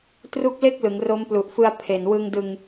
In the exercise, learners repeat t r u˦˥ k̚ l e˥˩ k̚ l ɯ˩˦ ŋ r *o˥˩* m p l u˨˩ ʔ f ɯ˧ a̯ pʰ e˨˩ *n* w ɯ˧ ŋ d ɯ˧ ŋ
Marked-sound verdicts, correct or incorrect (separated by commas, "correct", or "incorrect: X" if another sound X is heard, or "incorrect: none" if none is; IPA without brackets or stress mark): incorrect: o˦˥, correct